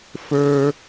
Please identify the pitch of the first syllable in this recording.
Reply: high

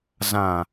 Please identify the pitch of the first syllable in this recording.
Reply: low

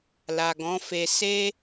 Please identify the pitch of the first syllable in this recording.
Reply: low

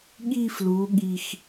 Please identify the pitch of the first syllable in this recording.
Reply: falling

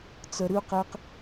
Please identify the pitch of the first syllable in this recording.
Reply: low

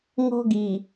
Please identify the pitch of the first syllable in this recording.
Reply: high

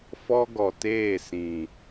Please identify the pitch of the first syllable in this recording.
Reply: high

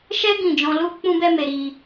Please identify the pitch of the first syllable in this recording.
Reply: high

